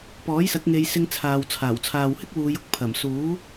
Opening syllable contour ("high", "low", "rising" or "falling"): rising